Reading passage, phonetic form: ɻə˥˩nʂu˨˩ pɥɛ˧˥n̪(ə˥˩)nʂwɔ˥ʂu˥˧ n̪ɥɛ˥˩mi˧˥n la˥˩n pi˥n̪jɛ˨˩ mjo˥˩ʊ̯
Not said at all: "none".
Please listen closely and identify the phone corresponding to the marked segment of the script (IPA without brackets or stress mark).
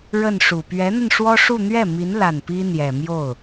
ə˧